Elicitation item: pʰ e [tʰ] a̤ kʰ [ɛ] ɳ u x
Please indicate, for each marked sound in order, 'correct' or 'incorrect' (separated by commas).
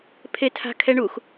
correct, correct